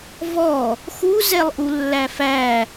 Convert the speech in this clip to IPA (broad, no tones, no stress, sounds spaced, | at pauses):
v ɔ | x u z ɛ lˠ ʔ u lː æ f æ